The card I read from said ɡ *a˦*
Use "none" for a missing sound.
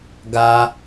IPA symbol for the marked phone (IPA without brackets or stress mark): a˦